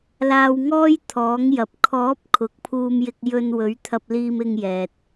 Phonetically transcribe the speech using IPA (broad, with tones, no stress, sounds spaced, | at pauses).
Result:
l aː˧ w ŋ ɔː˥ j t̪ʰ ɔː˨˥ ŋ j ɐ˨ p̚ kʰ ɔː˨˥ p̚ kʰ ʊ˨ k̚ pʰ uː˧ m j ɪ˧ k̚ j ɵ˧ n w ɵ˨˥ ɥ t̪ʰ ɐ˧ p̚ l iː˧ m ɪ˧ ŋ j ɛː˨ t̚